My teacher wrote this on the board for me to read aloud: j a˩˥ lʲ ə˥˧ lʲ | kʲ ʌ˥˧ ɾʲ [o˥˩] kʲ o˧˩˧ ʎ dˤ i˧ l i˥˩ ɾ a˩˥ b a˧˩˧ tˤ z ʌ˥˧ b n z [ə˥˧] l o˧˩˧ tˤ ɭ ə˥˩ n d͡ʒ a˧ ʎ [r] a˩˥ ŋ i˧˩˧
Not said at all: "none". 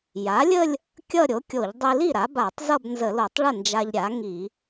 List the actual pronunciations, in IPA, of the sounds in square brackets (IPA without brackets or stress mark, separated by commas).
o˩˥, ə˧˩˧, ɾʲ